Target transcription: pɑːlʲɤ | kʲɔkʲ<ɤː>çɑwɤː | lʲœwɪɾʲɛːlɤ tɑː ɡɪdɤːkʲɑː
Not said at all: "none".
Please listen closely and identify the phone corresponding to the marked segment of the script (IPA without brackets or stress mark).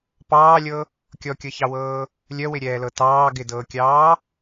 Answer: ɤ